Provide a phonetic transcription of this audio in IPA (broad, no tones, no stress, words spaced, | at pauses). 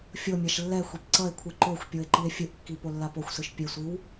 fʲomʲaʃ lːɛ xʷepǀʌe̯kʷʰɯ ǃoxʷ pʲoe̯ǃie̯fʲɯʔkːi polːapoxʷsɯʃ pʲesʷiw